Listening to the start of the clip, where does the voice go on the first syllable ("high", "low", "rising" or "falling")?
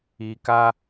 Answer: low